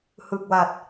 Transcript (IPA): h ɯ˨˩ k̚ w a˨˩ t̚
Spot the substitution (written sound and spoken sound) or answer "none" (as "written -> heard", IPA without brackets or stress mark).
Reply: none